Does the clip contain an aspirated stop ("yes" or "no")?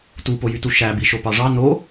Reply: no